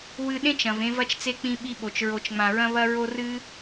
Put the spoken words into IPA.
w ɨ˧ ɗ ẽ˥ t͡ʃ ɐ̃˩ v ẽ˧ v ɐ˧ t͡ʃ t͡s e˧ k͡p ĩ˧ ɓ i˧ ɓ o˩ t͡ʃ ɹ o˩ t͡ʃ ŋ͡m ã˩ ɹ ɐ̃˧ β ɐ˧ ɹ o˧ r ɨ˧

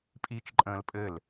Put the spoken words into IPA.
pʼ iː t͡ʃ ǃʼ ə̃ː l pʼ ɘ l

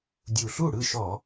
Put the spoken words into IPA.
dʲ u˨˩ ɬ u˥˩ ɽ ɯ˥˩ ʃ ɔ˧˩˧

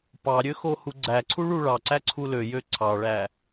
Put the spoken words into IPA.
p ɑ ɾʲ ø x o h u ɡ͡ǀ æ ǀʰ u ɭ u ɭ ɑ ǀ æ ǀʰ u l ø j ø ǀʰ ɑ ɭ æ

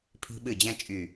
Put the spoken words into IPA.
pʰ i̤˧ ɓ ɨ˧˩ d͡ʑ ɛ̃˧ t͡ʃʼ y˧˩

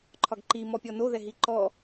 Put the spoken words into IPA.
ǃʰ ɒ ɡ ǃ i m ɔ pʲ ɔ n o ð ɛ ɦ i ǃ ɔ

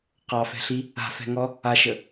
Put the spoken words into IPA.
q ɑ f ɛ̤ ɬ i | a̤ f ɛ̤ ŋ ɔ | a ʃ ə

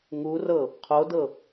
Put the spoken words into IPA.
ŋ u r ɤ | qʰ o d ɤ

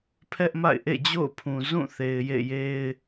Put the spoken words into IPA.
pʰ ɛ˦ ʔ m a̰˦˨ ɪ̯ ʔ ḛ˦˨ d͡ʑ o̰˦˨ ʊ̯ pʰ ũ˨ z ũ˦˨ θ e˨ ɪ̯ j ḛ˦˨ j e˦ ɪ̯

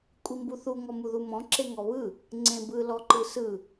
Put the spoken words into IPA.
kʷʼ i m b u θ u ŋ ɔ m u ð u m ɔ̃ ǁ e ŋ ɔ β ɯ | ŋ͡ǀ ẽ b ɯ l ɔ ǃ ɯ s ɯ

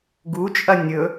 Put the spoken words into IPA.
ɡ u t͡ʃʼ ɐ nʲ ɵ

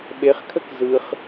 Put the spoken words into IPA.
ɓ e χ kʰ ə k z ɯ χ

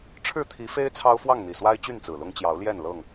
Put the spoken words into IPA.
ʈ͡ʂʰ ɻ̩˥˨ t̪ʰ i˨˦ f e˦ ɪ̯ t͡sʰ ɑ˦ ʊ̯ f w ɑ˥˨ ŋ n̪ i˨˩ s w a˦ ɪ̯ t͡ɕ y˥˨ n t͡s ɹ̩˨˩ l ʊ˦ ŋ t͡ɕ j ɑ˨˦ ʊ̯ l j ɛ˥˨ n l ɤ˥˨ ŋ

